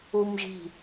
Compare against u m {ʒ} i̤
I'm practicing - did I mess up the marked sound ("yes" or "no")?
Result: no